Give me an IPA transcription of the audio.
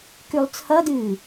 k ʉ lˠ t͡sʰ ʌ d ɨː

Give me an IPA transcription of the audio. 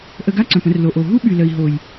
ʔ ə˧ ɡ a˦ ǀ œ̃˨ p ə̃˧ r l o˨ ʔ o˨ ɦ u˦ ɓ y˨ l ə˨ i̯ ɦ o˨ j

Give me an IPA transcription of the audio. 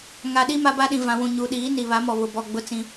ŋ a˨ ɗ i˦ m a˦ b a˦ ɗ ĩ˨ v ã˨ w ũ˨ ɲ u˨ ɗ iː˨˦ n i˨ β a˨˦ m ɔ˨ β ʊ˨ b ɔ˨ ɡ͡b ʊ˦ t͡s ĩ˦

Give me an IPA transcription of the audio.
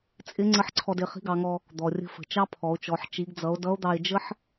t͡sʼ ɪ˧˥ ŋ͡ǀ ə˧˥ ħ ǀʰ ɔ˧ d ɪ˩˧ χ i̤˧˥ ɡ ɑ˩˧ ŋ ɔ˧ | d̪ ɔ˩ rʲ ə̤˧ f ə̤˩ t͡ʃ ɑ˥ pʰ ɔ˩˧ o̯ t͡ʃ ɔ˩˧ ħ t͡ʃ i˩˧ ɡ d͡z ʌ˩˧ o̯ d ʌ˧˥ o̯ d̪ ɑ˧ e̯ d͡ʒ ə˥ ħ

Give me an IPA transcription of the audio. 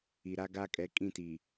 i˨ ɾ a˦ ɡ a˦ kʼ ɛ˨˦ kʼ ĩ˦˨ t iː˨

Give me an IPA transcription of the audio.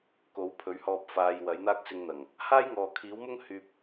k o˨˥ w pʰ ɵ˨˥ ɥ h ɔː˧ p̚ f aː˧ j w ɐ˨˥ j n̪ aː˥ k̚ s ɪ˧ ŋ n̪ ɐ˨˩ ŋ | h aː˥ j ŋ ɔː˨ kʰ iː˨˥ w m ʊ˥ ŋ h yː˥ p̚

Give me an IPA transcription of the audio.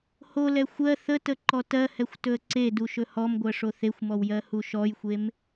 h o l ɛ xʷ ɜ θ ə t ə ǃ ɔ t ɜ h ɛ xʷ t ɵ ə̯ ǀ e d u ʃ ɵ h ɔ m ɡʷ ɜ ʂ o θ e xʷ m ɔ w j ɜ h u ʃ ɔ j xʷ e m

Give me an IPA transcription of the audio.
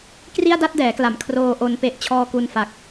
k r i˥˩ a̯ d a˥˩ t̚ d ɛː˩˦ k l a˩˦ m kʰ r oː˧ ʔ o˧ n p e˦˥ ʔ t͡ɕʰ ɔː˧ k u˧ n f a˨˩ k̚

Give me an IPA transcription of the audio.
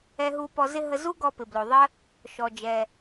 ɛ˧ ɦ u˧ p ɔ˧ z ɪ˥ ɦ ə˧ z u˥ ɡ ɔ˧ p ɪ˩ b l o˩ ðˤ ə˥ | ʃ ɔ˩ d͡ʒ ɛ˩

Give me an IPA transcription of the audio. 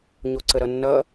ɲ o ǀ ə ɾ ʌ nː ʌ

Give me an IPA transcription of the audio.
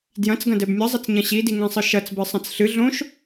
d j ɐ̃ t͡s ɡ ɐ̃ d ɛ b mʲ ɐ zˤ ɘ t͡s ɲ ɐ̃ ɕ i d i ŋ ɛ̃ sˤ ɨ ʃ ɐ t͡s b ɨ sˤ ɐ̃ t͡s ɬ ɨ ɮ õ ʃ

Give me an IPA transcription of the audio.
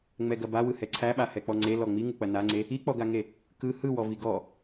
ŋ͡m ɛ ɡ ɐ b a w ɯ h ɛ ǀʰ æ ɓ a h ɛ k͡p ɔ ŋ͡ǀ e l ɔ ŋ͡m i ŋ u k͡p ɐ n a ŋ͡ǀ e | i k͡p ɔ ɡ a ŋ e | k ɯ h ɯ w ɔ v i ɡ ɔ

